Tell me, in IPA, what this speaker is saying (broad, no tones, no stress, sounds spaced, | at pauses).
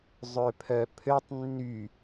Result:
zˤ ø pʰ œ pʰ ø tˤ nː y